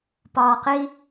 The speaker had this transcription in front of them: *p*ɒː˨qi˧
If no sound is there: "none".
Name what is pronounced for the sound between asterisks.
p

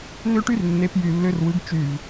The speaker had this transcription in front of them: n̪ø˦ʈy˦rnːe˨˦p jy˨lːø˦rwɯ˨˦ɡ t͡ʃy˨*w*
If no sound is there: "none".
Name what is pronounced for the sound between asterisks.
v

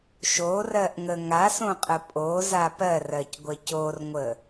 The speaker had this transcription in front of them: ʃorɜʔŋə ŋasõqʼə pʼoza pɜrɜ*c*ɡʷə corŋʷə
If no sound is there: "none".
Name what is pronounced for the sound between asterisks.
c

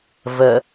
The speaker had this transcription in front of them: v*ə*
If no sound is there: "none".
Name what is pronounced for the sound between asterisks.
ə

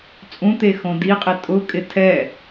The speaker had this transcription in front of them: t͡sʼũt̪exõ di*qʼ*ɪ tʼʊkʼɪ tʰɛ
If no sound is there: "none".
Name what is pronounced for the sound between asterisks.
qʼ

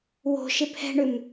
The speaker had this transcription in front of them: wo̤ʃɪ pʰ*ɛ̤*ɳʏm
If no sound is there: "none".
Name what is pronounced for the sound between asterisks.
ɛ̤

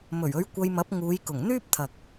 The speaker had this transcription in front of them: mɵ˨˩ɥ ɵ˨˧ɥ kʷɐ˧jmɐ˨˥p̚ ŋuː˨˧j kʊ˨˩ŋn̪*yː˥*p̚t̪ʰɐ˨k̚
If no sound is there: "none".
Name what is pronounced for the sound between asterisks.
yː˥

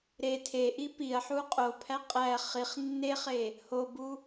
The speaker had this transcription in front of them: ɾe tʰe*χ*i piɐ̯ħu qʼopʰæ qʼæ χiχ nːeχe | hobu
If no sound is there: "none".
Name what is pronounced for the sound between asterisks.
ʔ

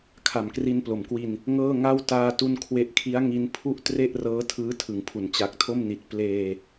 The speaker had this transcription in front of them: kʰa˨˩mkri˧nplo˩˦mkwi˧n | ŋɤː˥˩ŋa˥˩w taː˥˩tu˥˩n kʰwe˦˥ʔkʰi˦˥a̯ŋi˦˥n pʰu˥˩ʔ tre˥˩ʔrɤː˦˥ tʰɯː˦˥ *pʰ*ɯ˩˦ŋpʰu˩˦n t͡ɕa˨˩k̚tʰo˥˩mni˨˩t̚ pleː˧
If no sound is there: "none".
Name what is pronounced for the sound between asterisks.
tʰ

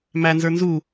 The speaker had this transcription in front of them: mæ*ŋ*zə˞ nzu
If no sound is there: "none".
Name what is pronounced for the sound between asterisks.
n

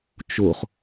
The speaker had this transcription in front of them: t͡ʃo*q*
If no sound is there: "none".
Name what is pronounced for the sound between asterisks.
χ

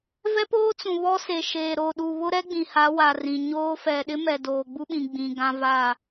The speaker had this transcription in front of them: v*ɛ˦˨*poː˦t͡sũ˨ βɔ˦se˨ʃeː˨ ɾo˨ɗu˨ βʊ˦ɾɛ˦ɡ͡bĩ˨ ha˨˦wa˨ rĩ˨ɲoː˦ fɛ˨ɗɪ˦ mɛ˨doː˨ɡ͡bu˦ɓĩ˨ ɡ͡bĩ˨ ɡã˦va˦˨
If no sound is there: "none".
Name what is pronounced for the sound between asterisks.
ɛ˦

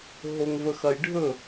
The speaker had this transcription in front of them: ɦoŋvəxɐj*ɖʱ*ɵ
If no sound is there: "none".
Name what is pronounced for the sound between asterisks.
ɖʱ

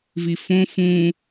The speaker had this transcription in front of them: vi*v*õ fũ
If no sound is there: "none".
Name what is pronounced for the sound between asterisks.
f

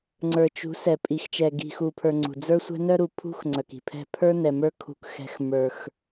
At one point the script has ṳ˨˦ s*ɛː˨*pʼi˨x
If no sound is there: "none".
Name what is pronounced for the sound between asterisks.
ɛ˨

